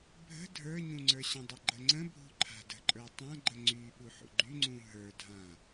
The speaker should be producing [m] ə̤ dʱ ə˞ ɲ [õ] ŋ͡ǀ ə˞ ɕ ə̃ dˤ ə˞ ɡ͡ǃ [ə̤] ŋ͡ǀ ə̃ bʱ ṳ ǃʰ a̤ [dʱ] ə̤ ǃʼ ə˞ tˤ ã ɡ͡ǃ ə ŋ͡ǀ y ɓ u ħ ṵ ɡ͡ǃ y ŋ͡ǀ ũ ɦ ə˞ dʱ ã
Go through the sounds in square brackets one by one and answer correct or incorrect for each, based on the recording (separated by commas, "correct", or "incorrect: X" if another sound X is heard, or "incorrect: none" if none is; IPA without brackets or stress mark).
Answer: incorrect: bʱ, incorrect: ũ, incorrect: ə, incorrect: d